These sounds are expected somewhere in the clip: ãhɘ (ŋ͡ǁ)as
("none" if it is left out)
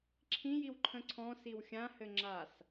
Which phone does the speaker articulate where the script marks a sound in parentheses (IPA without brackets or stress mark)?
ŋ͡ǁ